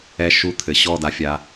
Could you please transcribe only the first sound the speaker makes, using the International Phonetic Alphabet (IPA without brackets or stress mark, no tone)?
ɛ